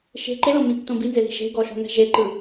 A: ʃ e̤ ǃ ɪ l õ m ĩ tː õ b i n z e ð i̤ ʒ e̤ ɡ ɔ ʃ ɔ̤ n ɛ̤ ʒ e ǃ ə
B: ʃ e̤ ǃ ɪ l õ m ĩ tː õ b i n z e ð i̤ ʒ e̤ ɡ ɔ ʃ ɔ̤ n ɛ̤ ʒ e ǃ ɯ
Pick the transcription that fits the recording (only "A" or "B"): B